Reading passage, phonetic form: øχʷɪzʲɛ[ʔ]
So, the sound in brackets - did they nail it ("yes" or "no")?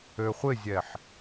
no